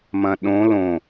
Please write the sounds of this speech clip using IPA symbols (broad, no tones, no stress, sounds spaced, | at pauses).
m ɐ̃ ɗ õ l õ